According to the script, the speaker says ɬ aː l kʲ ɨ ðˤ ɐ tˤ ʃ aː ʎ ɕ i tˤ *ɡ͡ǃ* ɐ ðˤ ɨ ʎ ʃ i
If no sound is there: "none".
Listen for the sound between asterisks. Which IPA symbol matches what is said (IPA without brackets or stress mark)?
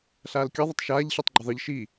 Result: ɡ͡ǃ